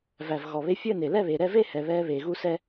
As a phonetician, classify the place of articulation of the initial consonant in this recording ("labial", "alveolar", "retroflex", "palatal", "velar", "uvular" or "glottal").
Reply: labial